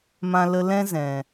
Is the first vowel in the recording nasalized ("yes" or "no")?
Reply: yes